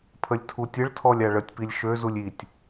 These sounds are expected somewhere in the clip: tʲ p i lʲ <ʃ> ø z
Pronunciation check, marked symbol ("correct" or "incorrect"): correct